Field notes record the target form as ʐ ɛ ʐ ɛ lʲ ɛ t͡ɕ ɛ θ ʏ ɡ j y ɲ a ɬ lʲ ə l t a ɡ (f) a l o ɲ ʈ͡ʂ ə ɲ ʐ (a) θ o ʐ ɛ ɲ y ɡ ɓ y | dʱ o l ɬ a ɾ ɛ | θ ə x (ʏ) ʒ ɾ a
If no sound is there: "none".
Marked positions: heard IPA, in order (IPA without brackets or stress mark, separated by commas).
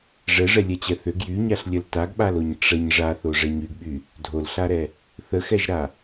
ɓ, a, ɛ